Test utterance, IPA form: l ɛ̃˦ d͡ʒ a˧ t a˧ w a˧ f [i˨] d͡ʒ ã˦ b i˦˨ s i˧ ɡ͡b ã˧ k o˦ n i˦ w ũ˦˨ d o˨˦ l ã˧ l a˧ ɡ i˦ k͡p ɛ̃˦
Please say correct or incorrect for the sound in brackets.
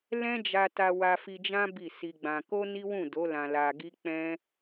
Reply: incorrect